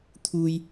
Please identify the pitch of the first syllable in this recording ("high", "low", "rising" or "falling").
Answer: high